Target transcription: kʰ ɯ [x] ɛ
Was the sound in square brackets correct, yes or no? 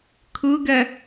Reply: no